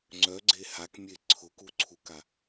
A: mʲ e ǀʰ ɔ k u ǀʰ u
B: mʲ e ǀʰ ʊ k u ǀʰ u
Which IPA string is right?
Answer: B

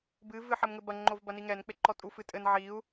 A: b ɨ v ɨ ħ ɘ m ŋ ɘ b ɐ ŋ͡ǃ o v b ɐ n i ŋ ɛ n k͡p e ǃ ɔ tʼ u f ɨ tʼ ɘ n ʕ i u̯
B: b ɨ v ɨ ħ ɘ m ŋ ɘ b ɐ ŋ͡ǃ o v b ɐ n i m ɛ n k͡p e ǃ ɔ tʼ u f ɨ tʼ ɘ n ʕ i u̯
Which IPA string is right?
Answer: A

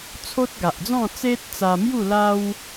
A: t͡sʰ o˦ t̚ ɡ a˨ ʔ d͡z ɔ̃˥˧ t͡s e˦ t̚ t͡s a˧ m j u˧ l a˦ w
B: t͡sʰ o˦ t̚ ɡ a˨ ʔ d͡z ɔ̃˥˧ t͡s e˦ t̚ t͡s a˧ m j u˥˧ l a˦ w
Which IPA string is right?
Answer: B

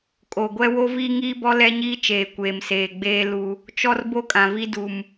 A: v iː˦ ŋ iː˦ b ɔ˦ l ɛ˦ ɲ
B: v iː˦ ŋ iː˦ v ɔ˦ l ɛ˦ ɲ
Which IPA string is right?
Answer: A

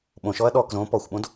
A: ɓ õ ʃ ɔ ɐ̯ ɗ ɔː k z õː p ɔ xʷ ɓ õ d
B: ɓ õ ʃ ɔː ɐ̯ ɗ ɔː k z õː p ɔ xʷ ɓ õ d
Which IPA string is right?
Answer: A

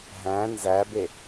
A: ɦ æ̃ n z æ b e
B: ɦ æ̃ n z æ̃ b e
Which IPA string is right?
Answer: A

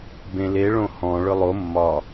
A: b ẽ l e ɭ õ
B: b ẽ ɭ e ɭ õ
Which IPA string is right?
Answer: A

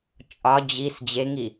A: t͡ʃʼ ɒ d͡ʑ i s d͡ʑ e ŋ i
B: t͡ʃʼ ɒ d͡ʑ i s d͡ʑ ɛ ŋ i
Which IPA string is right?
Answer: A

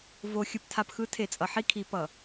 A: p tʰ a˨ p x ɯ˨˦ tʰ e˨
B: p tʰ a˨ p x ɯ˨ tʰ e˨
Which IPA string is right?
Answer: A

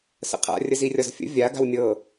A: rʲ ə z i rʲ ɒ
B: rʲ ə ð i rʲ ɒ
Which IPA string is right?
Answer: A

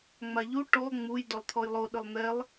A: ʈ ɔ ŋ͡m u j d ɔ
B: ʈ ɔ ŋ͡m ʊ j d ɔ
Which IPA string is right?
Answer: A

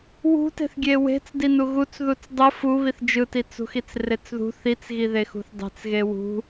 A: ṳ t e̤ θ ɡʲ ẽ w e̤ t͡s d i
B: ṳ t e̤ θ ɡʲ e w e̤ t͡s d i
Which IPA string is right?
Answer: B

